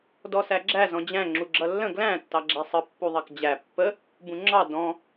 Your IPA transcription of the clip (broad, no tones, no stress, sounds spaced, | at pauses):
d ɔ s æ ɡ͡ǁ æ z ɔ̃ d͡ʑ æ̃ ŋ͡ǁ u ɡ͡ǁ ʌ lː ə̃ ɡ l æ̃ tː ɑ ɡ͡ǁ æ sˤ ə pː u ðˤ ɑ k d͡ʑ æ pː ə | b ũ ŋ͡ǁ ɑ d ɔ̃